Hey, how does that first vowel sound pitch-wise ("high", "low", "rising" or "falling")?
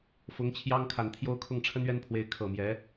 rising